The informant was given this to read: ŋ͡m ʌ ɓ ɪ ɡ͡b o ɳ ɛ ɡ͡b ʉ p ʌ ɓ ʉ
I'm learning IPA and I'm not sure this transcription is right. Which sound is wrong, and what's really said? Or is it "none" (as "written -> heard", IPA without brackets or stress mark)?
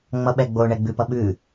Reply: ɪ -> ɛ